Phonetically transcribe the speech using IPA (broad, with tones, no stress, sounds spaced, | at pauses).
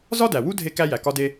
z ɒ˥ d æ˩ w u˥ dʱ e˥ k æ˥ j æ˩ k ɒ˥ d e˥